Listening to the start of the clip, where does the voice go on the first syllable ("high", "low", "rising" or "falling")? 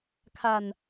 low